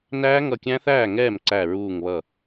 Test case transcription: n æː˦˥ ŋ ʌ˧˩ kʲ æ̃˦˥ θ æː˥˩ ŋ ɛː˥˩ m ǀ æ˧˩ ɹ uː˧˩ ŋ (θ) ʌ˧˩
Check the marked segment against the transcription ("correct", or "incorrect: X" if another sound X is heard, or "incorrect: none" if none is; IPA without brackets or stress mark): incorrect: β